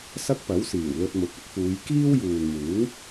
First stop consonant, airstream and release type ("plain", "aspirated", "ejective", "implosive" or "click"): plain